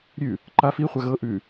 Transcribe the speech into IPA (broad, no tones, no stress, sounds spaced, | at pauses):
ɾʲ ʉ | ǃ a f i χʷ a ɣ ɤ ʔ ʉ